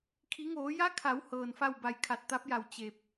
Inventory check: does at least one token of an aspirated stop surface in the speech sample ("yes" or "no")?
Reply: yes